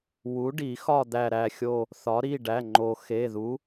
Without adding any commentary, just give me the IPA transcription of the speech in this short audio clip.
w u˨˥ ɖ i˨˩˦ x ɒ˦˨ d̪ æ˦˨ ɾ æ˦˨ xʲ o˦˨ | θ ɒ˨˥ ɾ i˩˧˩ ɖ æ˩˧˩ ŋ͡ǃ o˨˩˦ x e˩˧˩ ð u˨˥

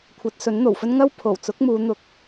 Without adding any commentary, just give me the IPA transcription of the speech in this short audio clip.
kʷʰ ɐ˨˥ t̚ s ɵ˨˥ n n̪ o˨˩ w f ɵ˥ n ŋ ɐ˥ w pʰ o˨˩ w t͡s ʊ˨˥ k̚ m uː˨˧ n̪ ʊ˨˥ k̚

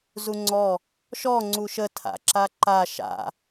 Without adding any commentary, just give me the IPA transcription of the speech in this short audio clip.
z u ŋ͡ǀ ɔ | ʃ ɔ ŋ͡ǀ u ʃ ə tʰ a̰ ǁ a ǃ a ʃ a̰

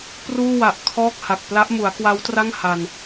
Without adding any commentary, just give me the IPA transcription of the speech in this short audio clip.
p r uː˥˩ w a˨˩ ʔ kʰ ɔː˥˩ k̚ h a˨˩ k̚ p l a˦˥ ʔ m u˩˦ a̯ k w a˦˥ w t r a˥˩ ŋ h a˧ n

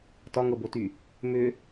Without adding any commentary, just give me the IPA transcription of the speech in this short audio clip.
t ɒ ŋ ɤ b o t y | m ʏ

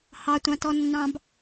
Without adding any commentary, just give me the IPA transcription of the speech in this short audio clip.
h ɑ tʷ ɑ̃ t ɔ nː ɑ̃ b

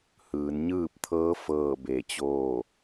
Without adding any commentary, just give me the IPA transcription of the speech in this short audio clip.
h ɯː˩˧ n ɲ ɯː˥˨ p̚ t̪ʰ ɤː˧˥ f ɤː˥˨ b e˧˩ t͡ɕ oː˥˨

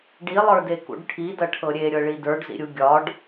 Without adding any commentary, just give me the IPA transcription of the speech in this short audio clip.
ɖ i lˠ ə˞ d e k ṵ ɖ ʈʰ i d ɐ ʈʰ ɤ ɾʲ e ɾʲ ɤ ɭ i d ə˞ ɖ z ḭ ɾʲ u ɡʲ ɒ ɖ

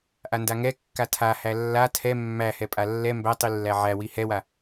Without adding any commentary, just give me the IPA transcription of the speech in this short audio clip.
ʔ a n d a ŋ ɛ kː a tʰ a h æ lː a tʰ ɛ mː æ h ɛ pʼ a lː ɛ m b æ tˤ i lː æ ʕ æ w i h ɛ w a

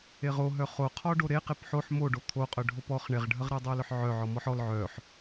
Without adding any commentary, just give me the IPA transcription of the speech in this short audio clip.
e ʁ o ɦ œ χ o qʰ ɔ ɖ o ɾ e q e p ħ o ħ m o ɖ o t̪ʰ o qʼ œ ɖʱ o p ɔ χ ɳ e ʁ ɖʱ ə ʁ ɾ e dˤ o l œ ħ ʕ œ ʕ ɔ m ɔ ħ ɔ l ʕ œ ħ

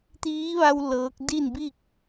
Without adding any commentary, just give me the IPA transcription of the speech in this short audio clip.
t̪ iː˧˥ ʋ a˧ w l ɤː˧˥ k̚ d i˥˨ n b i˥˨ k̚

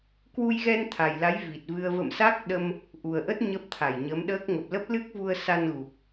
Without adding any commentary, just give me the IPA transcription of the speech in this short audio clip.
k w u˧ j ɣ ɛ˧ n t̪ʰ a˨˩ j l a˨˦ j v i˨˩ t̚ v ɨ˧ ə̯ v ə̰˧˨ m s a˦˥ k̚ ɗ ə˧ m | ʔ u˨˩ ə̯ ʔ ə˦˥ t̚ ɲ ə˦˥ p̚ t̪ʰ a˧˩ j ɲ ə˨˦ m ɗ əː˦˥ k̚ ŋ ə˨˩ p̚ l ə˦˥ p̚ l ɨ˦˥ k̚ v u˧ ə̯ s a˧ n ɣ u˨˩ k̚

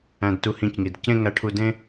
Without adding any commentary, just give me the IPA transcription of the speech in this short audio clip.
æ̃˧ d t u˧ h ĩ˧˩ c ŋ i˩˧ d c ẽ˥˧ ŋ æ˧ ʈʰ u˧ d ẽ˥

